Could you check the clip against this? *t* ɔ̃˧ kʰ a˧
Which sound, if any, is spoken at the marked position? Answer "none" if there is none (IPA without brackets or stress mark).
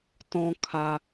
t